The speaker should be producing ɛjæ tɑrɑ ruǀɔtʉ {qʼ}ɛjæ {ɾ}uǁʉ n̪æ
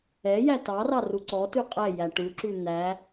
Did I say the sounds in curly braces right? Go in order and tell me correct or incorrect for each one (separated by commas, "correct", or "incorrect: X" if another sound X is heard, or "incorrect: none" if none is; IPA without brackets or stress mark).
correct, incorrect: ʈ